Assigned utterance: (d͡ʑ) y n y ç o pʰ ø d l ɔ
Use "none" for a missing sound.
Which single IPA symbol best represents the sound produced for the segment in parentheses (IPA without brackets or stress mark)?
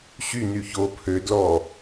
ɕ